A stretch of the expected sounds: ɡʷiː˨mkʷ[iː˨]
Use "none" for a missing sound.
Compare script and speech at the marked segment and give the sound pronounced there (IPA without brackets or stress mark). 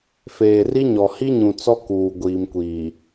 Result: iː˨